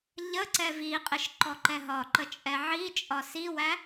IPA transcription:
ʎ ə ǀ ɛ v i qʼ ɪ ʃ ǃ ɔ ǃ ɛ ɦ ɒ ǃ ə t͡ʃʼ ɛ ʕ i t͡ʃʼ ɒ s i w æ

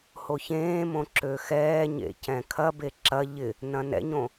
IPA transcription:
h o ç ẽː m õ ǁ ø x ɛː ɲ ḛ c ɛ̃ kʰ ɐ b e ǁ ɐ ʎ ɪ | n ɐ̃ n ɛ̰ ɲ õ

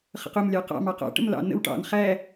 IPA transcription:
χ ə̰ q ʊ m lʲ ɑ q ɑ̰ m ɑ q ɑ̰ ʈ ə̰ m l ɑ̰ n ə̰ w ʈ ɑ̰ n χ æ

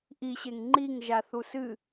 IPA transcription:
ʔ i ɕ e ŋ ŋ͡ǃ i ŋ ʒ a θ u s ɨ

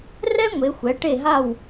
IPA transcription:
r ɛ˥ ŋʷ e˩˧ xʷ ɛ˩˧ ʈ e˧˩ ɦ a˧˩ w

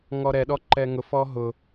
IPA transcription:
ŋ ɔ ɾ ɛ ɗ ɔ ǃ ɛ ŋ ʊ f ɔ ɦ ʊ

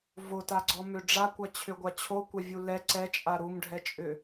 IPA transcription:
v o t a ɡ͡ǀ ɔ m ʏ ɖ͡ʐ a kʷ a t͡ɕʰ ʏ ɡʷ a t͡ɕʰ o kʷ a vʲ u l ɛ ǀ ɛ t͡ʃʼ a ɾ u m ɖʱ ɛ t͡ʃʼ ʏ

